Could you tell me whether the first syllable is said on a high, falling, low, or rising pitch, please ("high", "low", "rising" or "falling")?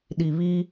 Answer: low